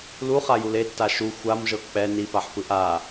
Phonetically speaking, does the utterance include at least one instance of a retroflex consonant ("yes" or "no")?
no